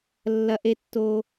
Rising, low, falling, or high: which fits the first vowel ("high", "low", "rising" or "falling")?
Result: high